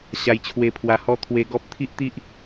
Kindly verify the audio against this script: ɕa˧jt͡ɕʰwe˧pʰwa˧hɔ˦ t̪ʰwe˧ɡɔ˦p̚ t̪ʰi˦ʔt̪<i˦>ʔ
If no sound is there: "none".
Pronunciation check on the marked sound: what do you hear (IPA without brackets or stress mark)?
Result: i˦